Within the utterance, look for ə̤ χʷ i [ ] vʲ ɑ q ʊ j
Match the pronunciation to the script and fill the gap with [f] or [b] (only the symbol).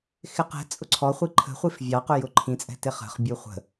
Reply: f